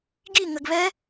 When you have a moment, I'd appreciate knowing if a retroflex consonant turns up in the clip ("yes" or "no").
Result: no